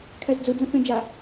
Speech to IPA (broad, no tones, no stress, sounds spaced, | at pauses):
kʰ ɛ z d͡z u d͡z ə̃ f ẽ d͡ʒ a